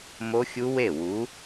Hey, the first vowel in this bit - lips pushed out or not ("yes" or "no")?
yes